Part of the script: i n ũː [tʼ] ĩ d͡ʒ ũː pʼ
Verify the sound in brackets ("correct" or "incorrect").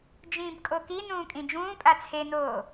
incorrect